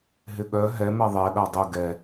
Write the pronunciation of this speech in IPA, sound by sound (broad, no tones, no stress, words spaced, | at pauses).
ɦɪɠœ ɦɛ mɛðˤɛ ɗadˤʊ ɡɛ